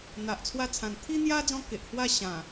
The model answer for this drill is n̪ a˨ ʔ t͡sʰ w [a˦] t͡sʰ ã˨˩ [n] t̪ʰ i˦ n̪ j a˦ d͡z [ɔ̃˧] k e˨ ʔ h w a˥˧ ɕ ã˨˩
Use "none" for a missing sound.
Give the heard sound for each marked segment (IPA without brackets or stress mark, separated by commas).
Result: a˧, n, ɔ̃˦